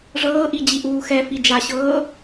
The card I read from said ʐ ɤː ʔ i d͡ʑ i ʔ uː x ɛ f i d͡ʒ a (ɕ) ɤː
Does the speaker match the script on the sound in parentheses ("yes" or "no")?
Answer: yes